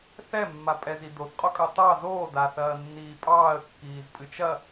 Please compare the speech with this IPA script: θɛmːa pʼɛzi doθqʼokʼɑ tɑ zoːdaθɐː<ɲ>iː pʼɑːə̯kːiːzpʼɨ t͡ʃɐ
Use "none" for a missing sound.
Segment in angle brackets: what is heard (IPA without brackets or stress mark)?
nː